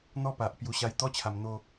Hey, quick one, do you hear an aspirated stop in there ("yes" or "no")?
yes